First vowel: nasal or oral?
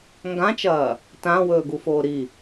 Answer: nasal